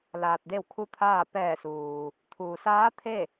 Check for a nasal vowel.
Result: absent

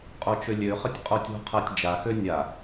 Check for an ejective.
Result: present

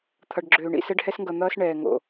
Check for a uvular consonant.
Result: absent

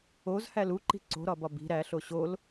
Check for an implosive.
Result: absent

